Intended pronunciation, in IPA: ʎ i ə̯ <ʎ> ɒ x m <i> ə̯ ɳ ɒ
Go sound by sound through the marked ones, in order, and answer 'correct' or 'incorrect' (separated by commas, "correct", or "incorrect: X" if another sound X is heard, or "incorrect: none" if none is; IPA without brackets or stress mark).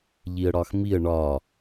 incorrect: ɽ, correct